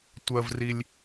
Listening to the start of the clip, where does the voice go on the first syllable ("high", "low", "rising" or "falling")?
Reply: low